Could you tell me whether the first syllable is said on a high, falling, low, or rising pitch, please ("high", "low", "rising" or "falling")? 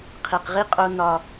low